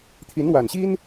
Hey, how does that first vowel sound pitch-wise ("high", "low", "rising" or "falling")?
rising